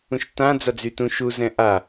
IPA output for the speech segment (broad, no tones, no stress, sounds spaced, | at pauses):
ũ ʃ t ã d͡z a d͡z y t ũ ʃ u z ɛ̃ ʔ a